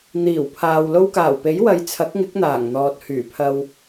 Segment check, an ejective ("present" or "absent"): absent